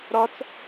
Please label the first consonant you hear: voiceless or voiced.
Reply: voiced